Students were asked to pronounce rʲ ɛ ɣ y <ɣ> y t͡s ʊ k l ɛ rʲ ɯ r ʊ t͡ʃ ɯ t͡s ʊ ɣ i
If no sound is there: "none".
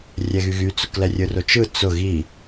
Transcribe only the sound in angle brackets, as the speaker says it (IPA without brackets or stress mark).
ɣ